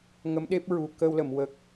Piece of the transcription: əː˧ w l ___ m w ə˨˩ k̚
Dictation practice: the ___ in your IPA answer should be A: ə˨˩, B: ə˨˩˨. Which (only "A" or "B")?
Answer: B